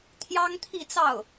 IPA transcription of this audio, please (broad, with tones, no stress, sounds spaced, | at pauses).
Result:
t̪ʰ j ɑ˥ ŋ t̪ʰ i˥˧ t͡s ɑ˥˩ ʊ̯